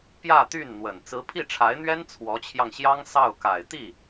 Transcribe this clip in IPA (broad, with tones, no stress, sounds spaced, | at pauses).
p j ä˥˧ t̪ y˥˩ n n̪ w ə˨˩ n t͡s ɹ̩˧˥ pʰ i˥˩ ʈ͡ʂʰ a˧˥ ɪ̯ n̪ ɥ ɛ˥ n t͡sʰ w ɔ˧˥ t͡ɕʰ j ɑ˧ ŋ ɕ j ɑ˥ ŋ s ɑ˥˩ ʊ̯ k a˨˩ ɪ̯ t̪ i˥˩